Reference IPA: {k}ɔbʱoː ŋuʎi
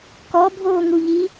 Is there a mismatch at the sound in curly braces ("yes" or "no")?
no